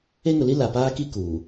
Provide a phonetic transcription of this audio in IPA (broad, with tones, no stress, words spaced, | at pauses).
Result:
e˦ŋʊ˨li˦ la˨paː˦ki˦ kuː˨